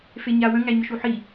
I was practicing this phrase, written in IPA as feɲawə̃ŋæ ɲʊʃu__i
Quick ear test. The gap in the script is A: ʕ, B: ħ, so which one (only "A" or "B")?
B